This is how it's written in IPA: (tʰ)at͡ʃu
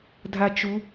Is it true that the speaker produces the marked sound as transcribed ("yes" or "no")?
no